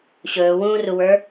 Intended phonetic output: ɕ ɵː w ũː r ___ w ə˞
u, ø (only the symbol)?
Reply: u